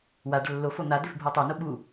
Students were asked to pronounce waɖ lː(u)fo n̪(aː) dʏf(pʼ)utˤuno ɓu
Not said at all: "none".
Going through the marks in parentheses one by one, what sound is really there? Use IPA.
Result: o, a, bʱ

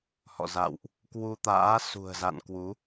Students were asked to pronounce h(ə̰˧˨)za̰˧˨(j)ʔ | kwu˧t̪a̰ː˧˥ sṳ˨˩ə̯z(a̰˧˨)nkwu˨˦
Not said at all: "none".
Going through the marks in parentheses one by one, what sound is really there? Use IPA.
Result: ɔ̰˧˨, w, a̰˧˨

